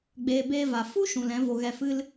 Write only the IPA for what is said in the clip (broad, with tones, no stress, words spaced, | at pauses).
ɡ͡beː˨beː˧ va˨ fu˦ ʃũ˨lɛ̃˨˦vo˧ ɣɛ˧fɨ˦l